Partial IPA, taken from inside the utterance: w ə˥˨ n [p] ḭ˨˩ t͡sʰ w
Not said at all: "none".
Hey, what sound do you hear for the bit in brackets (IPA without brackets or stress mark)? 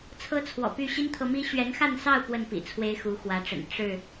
p